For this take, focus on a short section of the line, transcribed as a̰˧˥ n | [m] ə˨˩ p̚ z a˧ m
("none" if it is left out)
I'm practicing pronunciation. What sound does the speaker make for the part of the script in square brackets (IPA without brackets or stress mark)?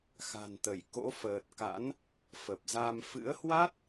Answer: f